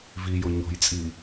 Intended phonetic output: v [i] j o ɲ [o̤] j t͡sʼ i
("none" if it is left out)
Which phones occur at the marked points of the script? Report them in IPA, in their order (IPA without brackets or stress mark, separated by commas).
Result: i, o̤